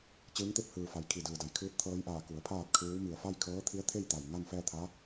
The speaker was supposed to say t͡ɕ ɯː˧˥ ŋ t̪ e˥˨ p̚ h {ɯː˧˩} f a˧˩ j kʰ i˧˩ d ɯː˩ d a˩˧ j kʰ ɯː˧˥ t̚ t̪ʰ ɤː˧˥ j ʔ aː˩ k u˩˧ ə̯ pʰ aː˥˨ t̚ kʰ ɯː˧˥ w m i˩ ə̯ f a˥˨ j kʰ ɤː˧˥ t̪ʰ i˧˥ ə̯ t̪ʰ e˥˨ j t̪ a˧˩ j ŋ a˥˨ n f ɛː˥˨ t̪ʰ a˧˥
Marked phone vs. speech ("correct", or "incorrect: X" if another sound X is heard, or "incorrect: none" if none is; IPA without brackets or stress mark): correct